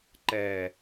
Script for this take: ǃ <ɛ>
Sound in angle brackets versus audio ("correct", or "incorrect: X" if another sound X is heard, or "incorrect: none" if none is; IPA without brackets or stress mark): correct